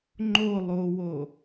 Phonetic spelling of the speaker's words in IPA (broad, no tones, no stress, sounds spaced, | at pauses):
ŋ͡ǃ o lˠ o w o